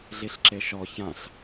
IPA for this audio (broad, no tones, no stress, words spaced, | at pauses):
ɮiɬǁeʃɔ çãɬ